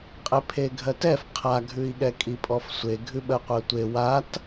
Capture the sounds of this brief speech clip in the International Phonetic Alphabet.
qʼepʰeɡʱɜtɛf qʰaɡʱʉi̯ɠɛ kʼipʼɔfsʷe ɡʱʉɓɜqʷɜtʷe wat

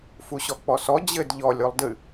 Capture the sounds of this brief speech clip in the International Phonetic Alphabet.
fuɕɔk͡pɔsɔ d͡ʑɘd ʎɔlʲ olˠdɨ

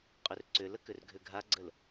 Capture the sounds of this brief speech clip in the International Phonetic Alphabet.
qʼʏrǀʏlək ʏrɡʱʏɡʱaɡ͡ǀəl

